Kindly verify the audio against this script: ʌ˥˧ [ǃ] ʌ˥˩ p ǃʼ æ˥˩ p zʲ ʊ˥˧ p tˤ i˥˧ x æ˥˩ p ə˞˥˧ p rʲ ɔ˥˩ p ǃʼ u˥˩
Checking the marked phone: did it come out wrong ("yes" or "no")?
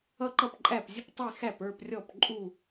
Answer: no